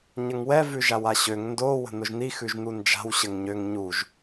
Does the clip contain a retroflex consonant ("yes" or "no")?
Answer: no